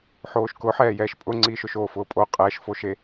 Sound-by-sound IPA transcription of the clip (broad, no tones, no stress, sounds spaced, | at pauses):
ħ oː ʃ k ʊ ħ ɛː j ɛː ʃ pʼ ʊ ŋ͡ǀ iː ʃ ʊ ʃ oː f ʊː pʼ o qʼ ɛː ʃ f o ʃ e